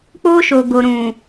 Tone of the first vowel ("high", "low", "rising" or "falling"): high